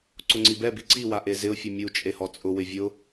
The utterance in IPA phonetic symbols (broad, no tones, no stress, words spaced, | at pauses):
ǀʊŋ͡ǀibɛbi ǀiwaʔe zɪʊ̯fʲʊ mʲu t͡ʃʼehɔt͡sʼʊ wɪvʲʊ